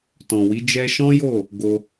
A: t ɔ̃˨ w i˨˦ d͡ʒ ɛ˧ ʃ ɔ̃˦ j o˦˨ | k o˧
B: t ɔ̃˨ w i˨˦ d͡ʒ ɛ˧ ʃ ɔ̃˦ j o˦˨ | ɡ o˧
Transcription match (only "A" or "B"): B